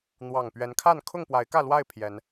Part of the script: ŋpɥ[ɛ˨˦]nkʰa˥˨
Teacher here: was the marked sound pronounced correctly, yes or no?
yes